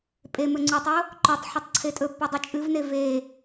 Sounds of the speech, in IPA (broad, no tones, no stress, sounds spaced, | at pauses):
pʼ e m ɵ ŋ͡ǀ u tˤ o | ǃ ɵ tˤ ħ ɵ tˤ ǀʰ e tʼ ɵ pː ʉ dˤ ɨ t͡ʃʼ ɨ v n e v e